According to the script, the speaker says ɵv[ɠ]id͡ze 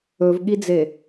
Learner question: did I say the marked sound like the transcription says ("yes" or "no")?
yes